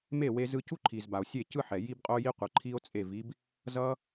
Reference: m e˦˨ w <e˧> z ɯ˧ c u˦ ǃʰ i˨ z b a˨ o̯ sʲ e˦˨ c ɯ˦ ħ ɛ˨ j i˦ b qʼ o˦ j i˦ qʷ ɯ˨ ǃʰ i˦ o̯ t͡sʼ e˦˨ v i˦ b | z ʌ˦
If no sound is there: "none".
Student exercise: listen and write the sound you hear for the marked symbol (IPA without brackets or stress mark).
e˧